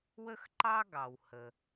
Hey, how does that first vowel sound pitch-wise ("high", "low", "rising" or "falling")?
high